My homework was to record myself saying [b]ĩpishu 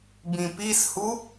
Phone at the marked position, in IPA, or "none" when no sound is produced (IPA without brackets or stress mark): b